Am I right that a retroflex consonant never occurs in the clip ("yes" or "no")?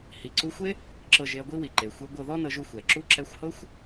yes